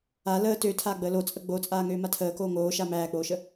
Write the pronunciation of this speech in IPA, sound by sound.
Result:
a l əː t ø tʰ aː ɡ͡b əː l o t͡sʼ ə ɡ͡b o t͡sʼ aː ŋ øː m a tʰ əː k oː ŋ oː ʃ a m æː k͡p oː ʃ ə

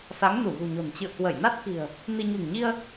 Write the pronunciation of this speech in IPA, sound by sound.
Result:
s a˨˦ ŋ n u˧˩ ɣ ṳ˨˩ ɲ o̤˨˩ n t͡ɕ ɨ̰˧˨ ə̯ k w ə˧˩ j n a˦˥ t̚ k i̤˨˩ ə̯ | n i˧ ɲ ṳ˨˩ ŋ ɲ i˧ ə̯

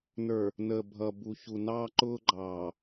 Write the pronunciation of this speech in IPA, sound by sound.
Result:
n ə˞˨ | n əː˨ bʱ ʌ˨ b u˨ ç u˨ n ɑː˦ ǃ ʊː˦ ɡ͡ǃ ɑː˨

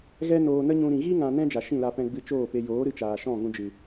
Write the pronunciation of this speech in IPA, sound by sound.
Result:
ɣ ɛ˦ n oː˧ n ə˦ ɲ ũ˧ ɾ ĩ˨ ɣ i˦ ŋ ã˧ n ɛ̃˦ d͡ʒ a˨ ʃ ĩ˦˨ l a˧ p ɛ̃˧ ɡ͡b ɨ˧ t͡ʃ oː˦˨ p e˧ j oː˨˦ ɾ ɨ˧ t͡ʃ aː˨ ʃ ɔ̃˦˨ ɣ ũ˧ d͡ʒ ɨ˨

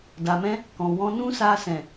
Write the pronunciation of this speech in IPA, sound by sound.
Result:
d a˨ m ɛ̃˧ | k ɔ̃˨ w ɔ̃˧ n ũ˦ s a˧ s ɛ̃˨

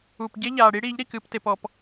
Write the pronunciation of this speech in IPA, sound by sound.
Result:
u˨ p ɟ e˦ ʎ aː˨ ɽ i˦ ɽ i˨˦ ʎ ɾ i˨ k ɨ˦˨ p t e˨ p ɔ˨ p

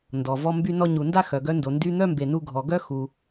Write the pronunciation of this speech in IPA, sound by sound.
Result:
n d ɔ˩ v ɔ˧ m b y˧ n ɔ˧ ɲ u˩ n d a˥ x œ˩ ɡ œ˧ n d o˩ n d y˧ n̪ œ˥ m b e˩ n u˧ ɡʱ ɔ˩ ɡ œ˥ x u˩

